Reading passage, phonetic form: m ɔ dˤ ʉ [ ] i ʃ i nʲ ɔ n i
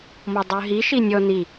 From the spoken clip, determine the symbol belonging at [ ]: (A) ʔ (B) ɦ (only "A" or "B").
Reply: B